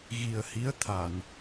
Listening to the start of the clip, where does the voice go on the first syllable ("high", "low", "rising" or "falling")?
low